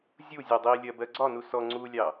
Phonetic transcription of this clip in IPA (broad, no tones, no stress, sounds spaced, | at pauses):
zʲ u zʲ ɜ dˤ i lʲ ɜ b ɜ ɡ͡ǀ ɒ n u s ɔ ŋ͡ǀ u lʲ ɑ